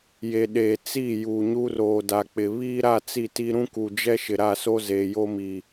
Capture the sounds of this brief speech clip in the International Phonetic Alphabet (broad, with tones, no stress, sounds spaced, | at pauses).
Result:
j e˨ ɗ eː˨ t͡s iː˦˨ j u˨ ɲ u˦ r oː˨ d a˨ k͡p ɪ˨ β iː˦ ɾ a˦˨ t͡s i˦˨ t i˦ ɾ ũ˦ k u˨ d͡ʒ ɛ˦ ʃ ɪ˨ ɾ a˦˨ s o˦ z eː˨ j o˦ m i˨